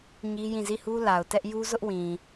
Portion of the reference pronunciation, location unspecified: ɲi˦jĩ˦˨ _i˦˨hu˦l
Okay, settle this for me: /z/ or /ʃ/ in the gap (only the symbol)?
z